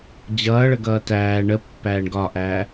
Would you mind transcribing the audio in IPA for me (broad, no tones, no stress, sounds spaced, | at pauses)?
d͡ʑ ʌː ɭ ə ɡ ʌː t æː ɳ ə pː æː ɳ ɡ ɒ ʔ æː